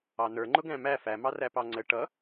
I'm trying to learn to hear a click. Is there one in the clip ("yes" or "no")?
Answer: yes